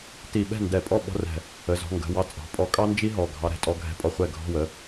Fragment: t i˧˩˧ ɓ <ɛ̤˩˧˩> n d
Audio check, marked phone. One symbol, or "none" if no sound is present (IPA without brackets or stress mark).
ɛ̤˥˩